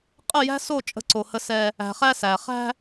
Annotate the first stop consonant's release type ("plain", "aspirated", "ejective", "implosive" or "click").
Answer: ejective